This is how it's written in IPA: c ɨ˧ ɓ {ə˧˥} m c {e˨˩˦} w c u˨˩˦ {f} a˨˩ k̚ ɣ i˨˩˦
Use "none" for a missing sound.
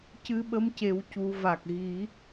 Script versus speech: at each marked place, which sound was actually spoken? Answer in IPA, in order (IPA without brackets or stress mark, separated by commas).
ə˧˥, e˨˩˦, v